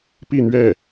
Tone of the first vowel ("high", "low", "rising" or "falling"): falling